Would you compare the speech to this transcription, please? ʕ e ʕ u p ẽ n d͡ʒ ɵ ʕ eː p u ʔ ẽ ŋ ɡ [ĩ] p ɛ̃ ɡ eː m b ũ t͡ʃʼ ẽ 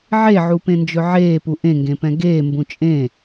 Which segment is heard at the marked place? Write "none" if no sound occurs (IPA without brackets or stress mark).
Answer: ẽ